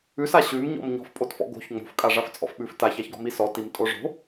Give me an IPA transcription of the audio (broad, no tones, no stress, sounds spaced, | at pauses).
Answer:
ʉ s a ɕ ʉ m ɲ ɔ̰ m ɲ ɔ̤ f pʼ o t f ɔ̰ ɡ o̤ ç ŋ͡m o̤ f kʼ a ʐ a f t͡sʼ ɔ̰ f ɓ ʉ f t a ç a ç ɡ ɔ̤ m i s ɔ t i m tʼ o ʐ o̤